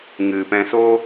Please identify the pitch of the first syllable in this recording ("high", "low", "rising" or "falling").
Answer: low